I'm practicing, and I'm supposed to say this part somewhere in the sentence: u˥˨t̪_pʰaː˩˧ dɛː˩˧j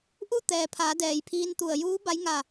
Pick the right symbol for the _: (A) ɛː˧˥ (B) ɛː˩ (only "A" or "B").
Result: B